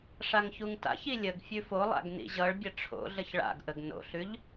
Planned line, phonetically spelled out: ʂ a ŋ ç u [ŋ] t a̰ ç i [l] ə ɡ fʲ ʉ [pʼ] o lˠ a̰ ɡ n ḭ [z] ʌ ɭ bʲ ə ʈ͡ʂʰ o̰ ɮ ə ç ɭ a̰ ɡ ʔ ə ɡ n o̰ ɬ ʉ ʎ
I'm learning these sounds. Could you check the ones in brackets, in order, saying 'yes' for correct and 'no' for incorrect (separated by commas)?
yes, no, no, no